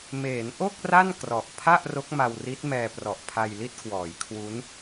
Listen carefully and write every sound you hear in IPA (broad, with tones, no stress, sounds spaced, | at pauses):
m eː˩˦ n ʔ o˥˩ k̚ r a˥˩ n k r ɔ˨˩ ʔ pʰ a˥˩ ʔ r o˦˥ k̚ m a˧ w r i˦˥ t̚ m ɛː˧ p r ɔ˨˩ ʔ pʰ a˧ j l i˥˩ t̚ k w ɔː˩˦ j kʰ w u˦˥ n